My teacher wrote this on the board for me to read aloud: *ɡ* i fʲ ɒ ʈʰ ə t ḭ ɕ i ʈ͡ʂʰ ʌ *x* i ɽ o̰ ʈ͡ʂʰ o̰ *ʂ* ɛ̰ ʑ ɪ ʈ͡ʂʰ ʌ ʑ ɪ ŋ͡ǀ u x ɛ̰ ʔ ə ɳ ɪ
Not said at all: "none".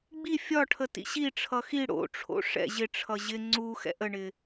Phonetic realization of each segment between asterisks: ɡ͡b, x, ʂ

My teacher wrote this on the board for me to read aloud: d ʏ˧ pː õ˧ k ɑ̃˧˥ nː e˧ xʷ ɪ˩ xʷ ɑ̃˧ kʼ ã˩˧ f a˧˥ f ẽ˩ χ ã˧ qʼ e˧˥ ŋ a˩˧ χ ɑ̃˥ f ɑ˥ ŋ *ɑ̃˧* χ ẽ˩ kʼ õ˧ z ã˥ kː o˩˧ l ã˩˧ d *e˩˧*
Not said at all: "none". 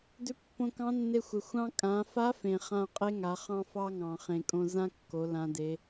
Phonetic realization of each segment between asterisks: ɑ̃˩, e˩˧

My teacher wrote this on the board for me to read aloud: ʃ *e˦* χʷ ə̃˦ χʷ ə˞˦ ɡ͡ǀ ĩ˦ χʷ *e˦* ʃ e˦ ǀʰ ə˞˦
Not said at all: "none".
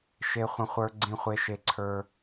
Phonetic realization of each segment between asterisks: e˦, e˦

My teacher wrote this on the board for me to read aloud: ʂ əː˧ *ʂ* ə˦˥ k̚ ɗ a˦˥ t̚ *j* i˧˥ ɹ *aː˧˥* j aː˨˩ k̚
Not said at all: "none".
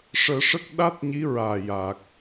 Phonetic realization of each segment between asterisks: ʂ, ɲ, aː˨˩

